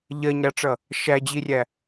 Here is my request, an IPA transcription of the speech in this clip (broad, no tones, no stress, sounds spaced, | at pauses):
ʎ ɜ ɲ ɾ ɑ ʈ͡ʂ ʌ | ʃ æ d͡ʑ i rʲ æ